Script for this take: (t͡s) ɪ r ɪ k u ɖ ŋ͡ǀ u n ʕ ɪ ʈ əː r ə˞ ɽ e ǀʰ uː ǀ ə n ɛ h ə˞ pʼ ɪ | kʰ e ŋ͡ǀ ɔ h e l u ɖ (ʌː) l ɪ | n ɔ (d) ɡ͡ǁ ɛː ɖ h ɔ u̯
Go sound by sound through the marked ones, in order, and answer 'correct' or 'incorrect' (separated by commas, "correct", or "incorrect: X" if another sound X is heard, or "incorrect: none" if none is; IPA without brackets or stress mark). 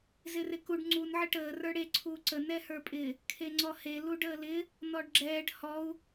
incorrect: z, incorrect: əː, incorrect: ɖ